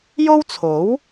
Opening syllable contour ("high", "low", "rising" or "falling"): high